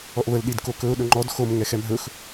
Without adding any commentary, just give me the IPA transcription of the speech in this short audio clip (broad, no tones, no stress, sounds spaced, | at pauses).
ɔ ʔ β ə l ɗ i d k o k ɵ ʊ̯ ɗ ɵ ŋ͡ǃ ɔ d x o m ŋ ɛ x ɛ m ɦ ɵ x